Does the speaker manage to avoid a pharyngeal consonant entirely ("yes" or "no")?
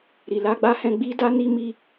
yes